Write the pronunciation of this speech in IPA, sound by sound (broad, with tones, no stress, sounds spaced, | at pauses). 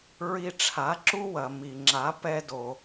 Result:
ɹ i˧ ʈ͡ʂʰ a˩˥ ǁ u˥ w ɐ˩ m i˩ ŋ͡ǁ a˩˥ p ɛ˧ d o˩